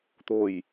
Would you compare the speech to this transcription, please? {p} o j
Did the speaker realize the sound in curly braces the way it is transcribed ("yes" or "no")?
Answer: no